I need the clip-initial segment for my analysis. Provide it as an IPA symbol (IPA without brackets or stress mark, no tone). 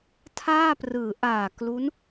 tʰ